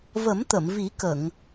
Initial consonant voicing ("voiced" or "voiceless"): voiced